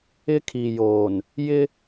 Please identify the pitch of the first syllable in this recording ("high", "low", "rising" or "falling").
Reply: high